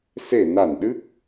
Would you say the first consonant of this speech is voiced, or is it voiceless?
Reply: voiceless